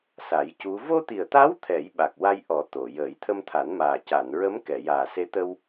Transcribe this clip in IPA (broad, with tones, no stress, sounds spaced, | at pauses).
s a˨˩˦ j c u˧˥ v o˧ t̪ i˨˩ ə̯ t̪ a˧˥ w t̪ʰ ɛ˨˩˦ j ɓ a˨˩ k̚ w a˧ j ʔ ɔ˨˩˦ t̪ o˨˩˨ j əː˨˩˦ j t̪ʰ ə˧ m t̪ʰ a˨˩˦ n m aː˨˩ c a˨˩˨ n ɹ ə˧˥ m k ɛ˨˩˨ j aː˨˩ s e˧˥ t̪ ə˧ w